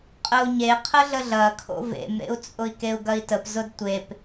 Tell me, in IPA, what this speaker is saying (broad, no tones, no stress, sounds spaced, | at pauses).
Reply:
qʼ ə u̯ ɲ e qʰ ə ɮ ə ɮ ɐ kʰ o̰ v ḛ m ɾ ḛ u̯ t͡sʼ ʊ i̯ k e u̯ ɡ ɐ i̯ t ə p z ʊ d tʷ e p